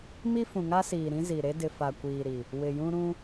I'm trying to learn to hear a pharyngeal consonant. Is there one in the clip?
no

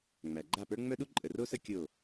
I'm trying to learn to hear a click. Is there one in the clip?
yes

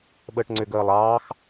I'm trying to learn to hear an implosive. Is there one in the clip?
yes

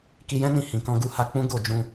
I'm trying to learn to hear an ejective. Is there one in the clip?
no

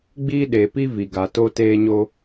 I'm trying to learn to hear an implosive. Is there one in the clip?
yes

